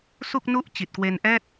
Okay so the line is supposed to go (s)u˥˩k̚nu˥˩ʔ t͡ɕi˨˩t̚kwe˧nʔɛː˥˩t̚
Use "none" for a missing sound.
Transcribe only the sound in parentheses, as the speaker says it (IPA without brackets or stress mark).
s